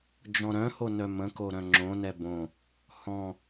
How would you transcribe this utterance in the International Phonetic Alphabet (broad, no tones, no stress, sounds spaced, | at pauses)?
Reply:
d͡ʒ ɔ̃ ɾ œ̃ h o n œ m ə̃ k o ɾ œ̃ ŋ͡ǁ õ n ɛ b õ | h ɔ̃